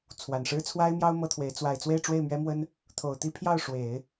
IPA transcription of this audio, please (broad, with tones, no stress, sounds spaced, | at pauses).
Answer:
t͡sʰ w a˨˩ n ʂ ɻ̩˥ t͡sʰ w a˥ ɪ̯ m j ɑ˥ ʊ̯ m ɤ˥ t̪ʰ w e˧˥ ɪ̯ t͡s w a˨˩ ɪ̯ t͡s w e˥˧ ɪ̯ ʈ͡ʂ w e˥˩ ɪ̯ m ɥ ɛ˥ m w ə˥ n | t̪ʰ o˨˩ ʊ̯ t̪ i˥˧ pʰ j ɑ˥˩ ʊ̯ ʂ w e˨˩˦ ɪ̯